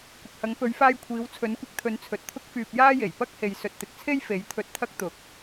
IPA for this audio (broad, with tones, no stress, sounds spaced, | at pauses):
kʷ ɪ˨ k̚ h ɐ˨˧ ŋ p ɵ˨˧ ɥ f aː˧ j kʷʰ iː˨˧ w t͡sʰ ɵ˨˧ n kʷ ɪ˧ k̚ t̪ʰ ɵ˨˧ n t͡sʰ ɵ˨ t̚ t̪ʰ ʊ˥ k̚ f yː˧ p̚ j aː˥ j e˨˩ j p ɐ˥ k̚ h e˨ j s ɵ˨ t̚ t̪ ɪ˨ k̚ t͡sʰ e˥ j f e˨˥ j t̪ʰ ɵ˧ t̚ t̪ʰ ɐ˥ k̚ t̪ ʊ˨˥ k̚